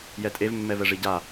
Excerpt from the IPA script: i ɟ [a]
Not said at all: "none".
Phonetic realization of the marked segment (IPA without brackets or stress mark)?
a